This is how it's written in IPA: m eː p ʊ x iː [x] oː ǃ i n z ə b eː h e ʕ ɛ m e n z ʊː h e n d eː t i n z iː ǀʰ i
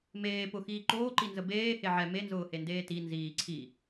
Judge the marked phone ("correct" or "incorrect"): incorrect